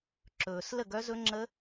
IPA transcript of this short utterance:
ǁɵː˩s lə˥˨ɡœ˦˥zɵ˦˥ŋ͡ǁə˦˥

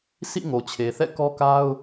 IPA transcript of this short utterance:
sʰḭ˦˨ ŋo˨t͡ɕʰe˨θɛ̰˦˨ kɔ˦ka˦ʊ̯

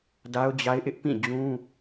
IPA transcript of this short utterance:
da˦ʊ̯d͡ʑa˦ɪ̯ʔɪ˦ʔ pĩ˦˨d͡ʑũ˦

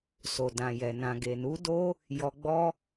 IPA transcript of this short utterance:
so˨dã˨jɛ˨ nã˨ɡe˨nu˨˦ do˦ | jɔ˧ɡ͡bɔ˦

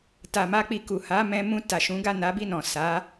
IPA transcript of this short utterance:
ta˨ma˧k͡pi˨ku˨ ha˨˦ mɛ̃˧mũ˧ ta˨ʃũ˨˦ ɡa˦˨na˨˦bi˦˨nɔ̃˨ sa˨˦

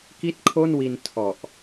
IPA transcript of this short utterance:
ki˥˩t̚kʰo˥˩nwi˧n tʰɔ˨˩ʔ

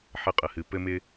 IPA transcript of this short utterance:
ħə˥˨qʼə˨hɨ˨ pɘ˦mɪ˦

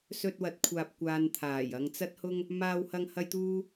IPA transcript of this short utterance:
sɵ˧t̚wɐ˨˥t̚kʷʰaː˨p̚kʷaː˨n t̪ʰaː˨˩j ɐ˧ŋt͡sɐ˥t̚hʊ˥ŋ | maː˧whɐ˧ŋ hɐ˥jt̪uː˥

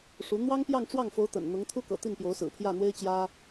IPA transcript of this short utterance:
ʂu˧˥ n̪wɑ˥ŋpjɑ˥˧ŋ ʈ͡ʂwɑ˥˩ŋfo˧˥ʊ̯t̪ə̰˨˩n n̪ʊ˧˥ŋt̪ʰu˥kɤ̰˨˩ t̪i˥˩npjo˧˥ʊ̯sɹ̩˨˩pʰjä˥˩ n̪we˥ɪ̯t͡ɕjä˥

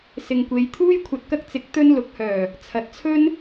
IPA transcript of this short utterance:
sɪ˨ŋkʷe˨˧jt̪ʰuː˥j kʷʰɐ˨t̚kɐ˧k̚ t͡sɪ˨˥k̚ t̪ɵ˧nlʊ˨˥k̚hœː˨˩ | t͡sʰɐ˨t̚t͡sʰɵ˥n

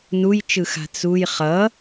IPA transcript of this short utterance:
nujt͡ʃɯxa̤ t͡suj χʌ

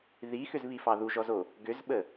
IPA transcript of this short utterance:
ðixʏzβifɑ ðuʒɔzo | ɡʏzɓə

